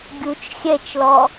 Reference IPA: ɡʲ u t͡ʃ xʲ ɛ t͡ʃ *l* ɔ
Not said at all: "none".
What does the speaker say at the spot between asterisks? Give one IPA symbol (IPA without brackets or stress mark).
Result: l